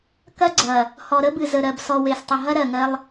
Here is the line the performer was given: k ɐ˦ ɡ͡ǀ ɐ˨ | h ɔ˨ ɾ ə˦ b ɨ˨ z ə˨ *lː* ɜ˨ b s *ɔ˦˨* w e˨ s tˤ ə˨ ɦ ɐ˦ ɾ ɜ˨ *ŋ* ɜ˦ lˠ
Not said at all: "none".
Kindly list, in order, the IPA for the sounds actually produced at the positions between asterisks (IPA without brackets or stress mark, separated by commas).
ɾ, ɔ˨, ŋ